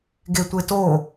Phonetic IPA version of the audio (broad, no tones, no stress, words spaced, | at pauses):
ɡetʷeto